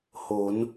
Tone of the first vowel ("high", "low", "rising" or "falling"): rising